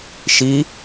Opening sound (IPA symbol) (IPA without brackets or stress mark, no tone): ʃ